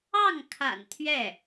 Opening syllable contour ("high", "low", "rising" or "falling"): falling